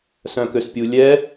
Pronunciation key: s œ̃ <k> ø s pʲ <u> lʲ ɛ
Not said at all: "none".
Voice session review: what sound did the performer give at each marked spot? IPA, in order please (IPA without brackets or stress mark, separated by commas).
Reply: k, u